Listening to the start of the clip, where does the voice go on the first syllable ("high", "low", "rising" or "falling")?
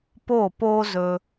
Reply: falling